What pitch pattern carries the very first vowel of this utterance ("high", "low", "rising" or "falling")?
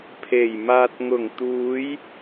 low